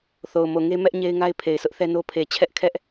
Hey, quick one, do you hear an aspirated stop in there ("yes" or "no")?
yes